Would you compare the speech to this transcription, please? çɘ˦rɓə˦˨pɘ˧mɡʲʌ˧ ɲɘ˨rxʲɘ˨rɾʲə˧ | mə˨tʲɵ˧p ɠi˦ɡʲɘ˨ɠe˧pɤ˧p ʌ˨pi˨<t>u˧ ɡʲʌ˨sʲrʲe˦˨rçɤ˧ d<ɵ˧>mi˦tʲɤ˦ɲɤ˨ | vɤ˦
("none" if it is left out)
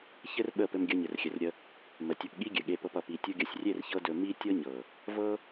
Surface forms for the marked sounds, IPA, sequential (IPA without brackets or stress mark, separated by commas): tʲ, ɵ˧